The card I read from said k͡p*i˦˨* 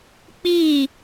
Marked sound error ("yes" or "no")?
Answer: no